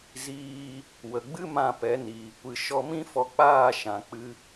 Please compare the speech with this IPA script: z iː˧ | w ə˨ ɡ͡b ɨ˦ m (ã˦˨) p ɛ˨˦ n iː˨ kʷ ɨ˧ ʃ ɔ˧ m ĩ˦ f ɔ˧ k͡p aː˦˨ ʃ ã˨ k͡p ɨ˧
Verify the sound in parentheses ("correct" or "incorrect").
correct